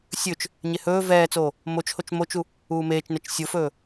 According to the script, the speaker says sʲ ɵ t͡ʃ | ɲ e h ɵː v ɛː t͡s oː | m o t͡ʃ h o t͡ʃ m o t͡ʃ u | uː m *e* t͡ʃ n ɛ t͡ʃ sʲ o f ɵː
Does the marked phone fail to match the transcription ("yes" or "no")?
yes